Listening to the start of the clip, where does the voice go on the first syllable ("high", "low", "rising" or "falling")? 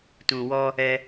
low